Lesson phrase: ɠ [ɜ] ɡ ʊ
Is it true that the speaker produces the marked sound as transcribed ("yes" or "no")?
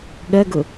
yes